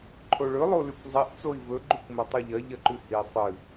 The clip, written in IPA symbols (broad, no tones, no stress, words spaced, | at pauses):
ǃʰoɭɵ lˠolʉkʷzˤiʔ t͡soi̯vɵ ɡ͡ǃʉkʷmɐtˤoʎɐ ʎɐǃʉhi sˤɨ